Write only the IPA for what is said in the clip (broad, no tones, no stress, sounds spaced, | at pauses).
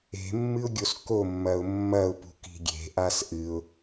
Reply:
e̤ mː ɨ ʊ̯ ɡʲ o s k o mː ɐ ʊ̯ mː ɐ ʊ̯ p ṳ k i̤ ɡʲ e̤ ʔ a s ʔ ɨ ʊ̯